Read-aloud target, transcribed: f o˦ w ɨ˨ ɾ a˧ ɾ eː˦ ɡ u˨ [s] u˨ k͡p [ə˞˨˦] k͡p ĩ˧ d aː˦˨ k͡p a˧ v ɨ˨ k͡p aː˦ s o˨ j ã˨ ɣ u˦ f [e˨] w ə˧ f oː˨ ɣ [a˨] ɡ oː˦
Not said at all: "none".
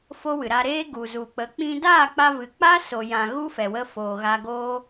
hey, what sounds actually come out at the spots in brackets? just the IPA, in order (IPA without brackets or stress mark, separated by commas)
z, ə˨˦, ɛ˨, a˧